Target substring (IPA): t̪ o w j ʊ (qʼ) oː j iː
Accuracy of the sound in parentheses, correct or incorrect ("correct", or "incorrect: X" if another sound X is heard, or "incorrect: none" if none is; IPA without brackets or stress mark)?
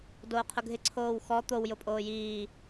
incorrect: pʼ